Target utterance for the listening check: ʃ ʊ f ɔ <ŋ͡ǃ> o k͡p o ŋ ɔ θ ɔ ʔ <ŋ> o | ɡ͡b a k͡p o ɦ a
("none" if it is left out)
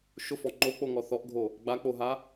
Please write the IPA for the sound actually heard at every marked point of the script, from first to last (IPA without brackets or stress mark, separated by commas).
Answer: ŋ͡ǃ, ɡʱ